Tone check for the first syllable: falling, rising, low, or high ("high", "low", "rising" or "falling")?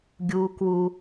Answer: high